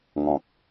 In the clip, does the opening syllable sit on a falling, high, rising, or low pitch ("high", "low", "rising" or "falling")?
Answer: low